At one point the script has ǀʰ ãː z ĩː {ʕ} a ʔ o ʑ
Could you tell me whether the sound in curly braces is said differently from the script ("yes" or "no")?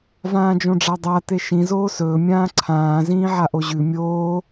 no